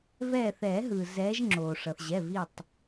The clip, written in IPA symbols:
v ɛː˧˩ θ ɛː˨˩˦ ɦ ɯː˩ z ɛː˨˦ ʒ ŋ͡ǁ oː˩ ʂ ʌ˩ θ ʑ ɛ˩˧˩ v i˧˩ tˤ

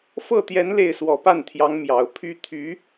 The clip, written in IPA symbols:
f ɤ˥˩ t̪ j ɛ˧˥ n l e˥˩ ɪ̯ s w ɔ˨˩ p a˥˩ n t̪ʰ j ɑ˧˥ ŋ m j ɑ˨˩ ʊ̯ pʰ y˥ t̪ʰ y˧˥

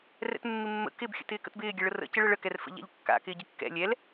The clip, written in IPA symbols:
r ɛ̰ t mː ɪ mː ə̰ k ɪ b xʲ ə̰ t ɪː k ə̰ t b ɪː ɡʲ ɛ ɭ ə r ə̰ c ɪ ɭ ə ɭ ə k ɛ r f ə̰ ʎ a̰ ʎ kː a̰ k ɪː ɟ ɪ kː ɛ̰ lʲ ɛ l

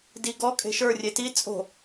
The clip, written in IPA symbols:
d i ɡ ɔ kʼ e̤ ʃ ə˞ rʲ e t i t͡sʼ o̤

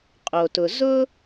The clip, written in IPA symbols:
qʼ o˩ t ʊ˩ z ʊ˧

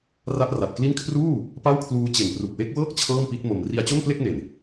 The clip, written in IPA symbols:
r a˦˥ ʔ r a˨˩ t̚ k l i˥˩ n kʰ r uː˥˩ | p a˥˩ w kʰ l uː˦˥ t͡ɕ e˨˩ n p r u˨˩ k̚ w e˦˥ k̚ w ɤː˥˩ k̚ t͡ɕʰ ɤː˥˩ m p i˦˥ t̚ m o˧ m r i˧ a̯ t͡ɕ o˥˩ n p l e˥˩ k̚ n e˨˩ n

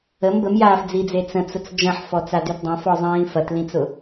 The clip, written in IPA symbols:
ə m b ə m j aː f d͡z i d͡z e t͡s ə̃ t͡s ʊ t͡s d͡ʒ ɐ̃ ħ f ɔ t͡s a d y t dˤ ɐ̃ f ɔ zˤ ĩː f ɐ t l ĩ t͡s ʊ

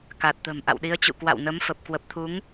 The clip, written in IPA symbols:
k a˨˩ t̚ t̪ ə̤˨˩ m ʔ a̰˧˨ w ɗ i˨˦ ə̯ t͡ɕ ṵ˧˨ k w a̰˧˨ w n ə˨˦ m f ə˨˩ p̚ k w ə˨˩ p̚ t̪ʰ u˨˦ ŋ

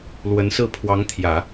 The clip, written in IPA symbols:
l w ə˧˥ n s ɹ̩˥˩ pʰ w ɑ˧˥ ŋ t̪ʰ j ä˨˩˦

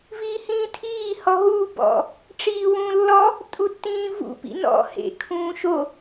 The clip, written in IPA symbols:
v iː h ĩː tʰ iː h ɔ ɦ u b ɔ̰ | ʈ͡ʂ iː w ũː lː ɔ | tʼ u tː ĩː v ṵ p ḭ n ɔ̰ h ḛ kʰ ũː ʃ o

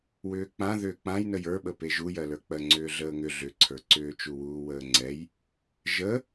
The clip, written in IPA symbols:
w ʏː k͡p ã ð ʏː k͡p ã j n ə j ə˞ ɓ ə p e ʒ u j ɜ l ə˞ k͡p ɜ ŋ͡ǀ ʏː ɮ əː ŋ ʏ ɮ ʏ ǀʰ ə˞ ǀ ʏː t͡ʃ u w uː w əː ŋ͡ǀ ɛ j | ʒ ə

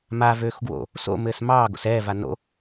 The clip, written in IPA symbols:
m a v øː x ɡ w o̰ | s o̰ m ɘː s m ɑː ɡ o̰ s ɛː v a n o̰

